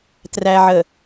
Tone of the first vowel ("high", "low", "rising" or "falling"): low